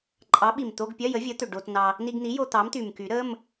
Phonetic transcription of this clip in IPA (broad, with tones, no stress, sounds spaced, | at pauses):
ǃʼ ɑ˨˥ ɓ i˨˩ m t̪ o˧˥˧ ɡ pʲ ɜ˧˥˧ j ə˨˥ vʲ ə˨˥ t̪ ʏ˨˩ ɖ o˧ t n ɑ˧ | n i˧ ɡ n̪ i˨˥ j o˧ t̪ ɑ˨˥ m t̪ y˨˩ m k y˨˩˦ ɾ ə˧˥˧ m